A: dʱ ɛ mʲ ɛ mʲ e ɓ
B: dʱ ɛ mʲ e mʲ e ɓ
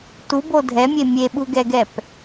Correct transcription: B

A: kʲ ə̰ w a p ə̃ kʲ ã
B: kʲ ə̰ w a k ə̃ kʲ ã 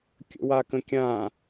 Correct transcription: B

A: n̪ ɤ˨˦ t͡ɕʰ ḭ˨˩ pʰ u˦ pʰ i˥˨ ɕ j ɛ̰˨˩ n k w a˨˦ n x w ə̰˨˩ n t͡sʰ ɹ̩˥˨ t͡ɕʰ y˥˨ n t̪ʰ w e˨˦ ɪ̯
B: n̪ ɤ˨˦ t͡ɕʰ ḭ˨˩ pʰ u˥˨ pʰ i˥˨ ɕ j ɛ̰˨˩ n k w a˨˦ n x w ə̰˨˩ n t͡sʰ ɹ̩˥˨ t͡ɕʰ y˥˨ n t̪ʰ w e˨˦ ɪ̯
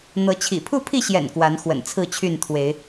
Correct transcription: B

